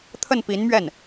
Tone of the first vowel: falling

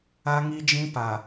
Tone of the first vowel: high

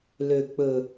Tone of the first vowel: low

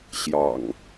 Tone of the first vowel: low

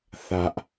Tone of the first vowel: high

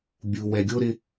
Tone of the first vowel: low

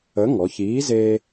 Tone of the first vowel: rising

